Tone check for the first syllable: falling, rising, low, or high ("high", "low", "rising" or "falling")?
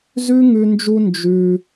high